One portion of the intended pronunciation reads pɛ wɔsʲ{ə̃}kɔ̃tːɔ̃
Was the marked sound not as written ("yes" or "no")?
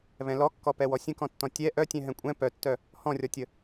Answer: no